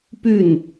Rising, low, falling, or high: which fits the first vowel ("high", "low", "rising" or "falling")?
falling